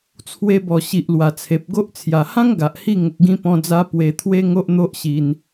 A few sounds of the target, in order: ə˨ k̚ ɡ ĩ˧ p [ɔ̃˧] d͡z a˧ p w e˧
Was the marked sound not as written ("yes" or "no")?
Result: no